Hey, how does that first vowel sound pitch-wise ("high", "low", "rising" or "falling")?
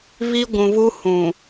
high